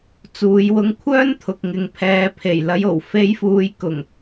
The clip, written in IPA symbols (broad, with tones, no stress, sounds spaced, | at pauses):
t͡s uː˨˧ j w ʊ˧ ŋ kʷʰ œː˥ n t̪ʰ ʊ˨ k̚ ŋ ɪ˨ ŋ pʰ ɛː˨ pʰ e˨˩ j l ɐ˨˧ j o˨˩ w f e˨˧ j f uː˨ j k ʊ˨˩ ŋ